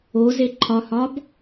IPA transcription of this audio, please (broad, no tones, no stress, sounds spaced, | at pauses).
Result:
o z e ǃʰ ɒ h ɒ b